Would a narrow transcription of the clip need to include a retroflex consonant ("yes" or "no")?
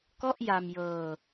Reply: no